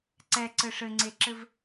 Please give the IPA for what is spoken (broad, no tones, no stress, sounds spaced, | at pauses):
ǀ ɛ ǀ ɘ ʂ ɘ ŋ͡ǀ e ǁ ɘ v